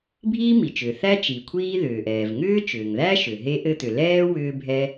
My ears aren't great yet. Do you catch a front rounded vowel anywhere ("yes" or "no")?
yes